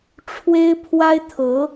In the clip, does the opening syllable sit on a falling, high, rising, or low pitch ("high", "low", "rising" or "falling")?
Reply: high